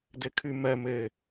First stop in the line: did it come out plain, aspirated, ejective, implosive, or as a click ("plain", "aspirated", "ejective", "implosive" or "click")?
plain